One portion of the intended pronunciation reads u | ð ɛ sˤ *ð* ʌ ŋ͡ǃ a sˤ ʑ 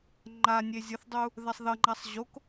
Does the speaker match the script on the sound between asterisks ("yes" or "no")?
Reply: yes